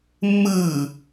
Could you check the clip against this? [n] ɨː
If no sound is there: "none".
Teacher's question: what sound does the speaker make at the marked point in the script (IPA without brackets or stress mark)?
mː